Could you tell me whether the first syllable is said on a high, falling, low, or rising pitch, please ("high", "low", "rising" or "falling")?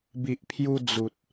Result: low